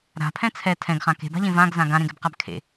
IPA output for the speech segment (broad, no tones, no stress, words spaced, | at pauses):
ɾa̤pʰɛ̃ t͡sʰɛ tʰɛ̃ɡχã ke̤ba̤ʎẽ vãɡzã ɡãɾẽɡɛbqab kʰḛ